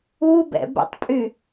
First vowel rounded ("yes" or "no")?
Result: yes